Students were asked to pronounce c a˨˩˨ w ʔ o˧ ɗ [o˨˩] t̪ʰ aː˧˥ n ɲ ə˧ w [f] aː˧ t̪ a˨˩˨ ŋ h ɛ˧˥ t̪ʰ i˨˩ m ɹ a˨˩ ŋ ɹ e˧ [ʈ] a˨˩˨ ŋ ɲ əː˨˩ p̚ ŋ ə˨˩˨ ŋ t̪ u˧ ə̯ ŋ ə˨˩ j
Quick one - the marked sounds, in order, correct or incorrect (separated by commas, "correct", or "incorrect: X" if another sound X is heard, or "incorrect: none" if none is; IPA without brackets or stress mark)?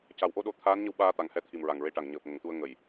correct, incorrect: ɓ, correct